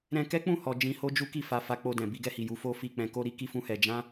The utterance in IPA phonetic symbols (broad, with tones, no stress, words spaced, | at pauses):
ɾɛ̃˧kɛ˦ k͡pũ˦˨hɔ˨ d͡ʒĩ˧ho˦d͡ʒu˦ ki˦˨fa˧ fa˧k͡po˧dɛ̃˨ bi˧ɡɛ˧hi˨ ju˨˦fo˦fi˦˨ k͡pɛ̃˧ko˦ ɾi˦ki˦ fũ˦hɛ˧ d͡ʒã˦